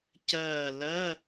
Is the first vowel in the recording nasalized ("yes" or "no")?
no